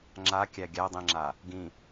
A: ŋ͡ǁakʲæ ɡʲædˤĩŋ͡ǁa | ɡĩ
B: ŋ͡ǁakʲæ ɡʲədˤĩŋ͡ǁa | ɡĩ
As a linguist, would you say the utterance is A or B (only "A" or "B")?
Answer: A